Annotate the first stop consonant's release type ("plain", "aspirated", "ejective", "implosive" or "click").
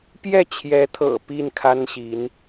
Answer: plain